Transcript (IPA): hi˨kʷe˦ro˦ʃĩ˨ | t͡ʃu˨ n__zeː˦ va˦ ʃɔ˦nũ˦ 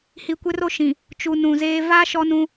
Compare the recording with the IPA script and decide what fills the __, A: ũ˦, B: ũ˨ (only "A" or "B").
B